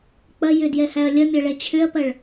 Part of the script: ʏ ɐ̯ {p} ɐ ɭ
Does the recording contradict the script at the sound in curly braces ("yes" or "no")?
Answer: no